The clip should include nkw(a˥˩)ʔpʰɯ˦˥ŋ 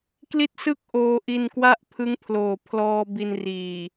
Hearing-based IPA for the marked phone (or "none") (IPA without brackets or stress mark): a˥˩